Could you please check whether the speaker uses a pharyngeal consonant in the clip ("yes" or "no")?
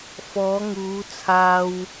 no